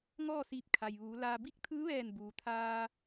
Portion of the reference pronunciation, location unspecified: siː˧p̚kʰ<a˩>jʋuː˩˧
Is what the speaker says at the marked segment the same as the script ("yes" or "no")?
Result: yes